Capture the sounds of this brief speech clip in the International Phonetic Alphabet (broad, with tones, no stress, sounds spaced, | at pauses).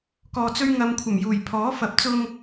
k ɔː˨ t͡s ɵ˧ ɥ ŋ ɐ˨ m kʷʰ ɐ˨˩ m j uː˨˩ j pʰ ɔː˨˥ f ɐ˨˥ p̚ t͡s ʊ˧ ŋ